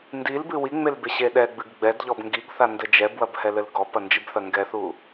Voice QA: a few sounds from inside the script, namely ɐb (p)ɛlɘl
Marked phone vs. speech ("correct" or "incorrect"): incorrect